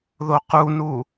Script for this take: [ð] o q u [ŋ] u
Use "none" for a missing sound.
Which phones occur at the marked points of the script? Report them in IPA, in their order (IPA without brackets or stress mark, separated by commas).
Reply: ð, n